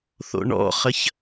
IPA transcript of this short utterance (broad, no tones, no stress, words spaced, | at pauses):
θo̰ɳɔ̰χəç